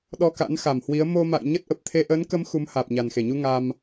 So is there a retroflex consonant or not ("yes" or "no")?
no